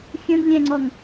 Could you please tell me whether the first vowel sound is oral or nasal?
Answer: nasal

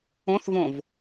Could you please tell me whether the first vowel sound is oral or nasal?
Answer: nasal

